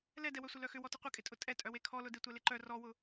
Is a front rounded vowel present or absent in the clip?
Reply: present